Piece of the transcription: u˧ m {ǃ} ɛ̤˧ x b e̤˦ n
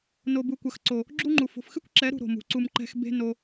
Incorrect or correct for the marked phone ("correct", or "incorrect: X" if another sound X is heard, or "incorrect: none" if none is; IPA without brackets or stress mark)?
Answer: correct